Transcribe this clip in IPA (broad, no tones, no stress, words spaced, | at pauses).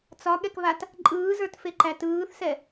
t͡sɒɠɛkβat | ǃʼɯːzə˞tfeǃæ tɯːθsɛ